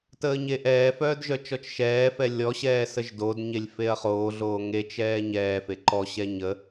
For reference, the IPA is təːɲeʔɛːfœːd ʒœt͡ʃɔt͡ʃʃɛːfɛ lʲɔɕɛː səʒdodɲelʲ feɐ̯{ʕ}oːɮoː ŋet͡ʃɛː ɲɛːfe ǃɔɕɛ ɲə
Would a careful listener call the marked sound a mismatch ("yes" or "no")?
yes